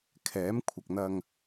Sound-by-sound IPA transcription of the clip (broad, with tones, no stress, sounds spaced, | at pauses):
kʰ ɛː˨˥ m kʷʰ ɐ˨ k̚ n̪ ɐ˧ ŋ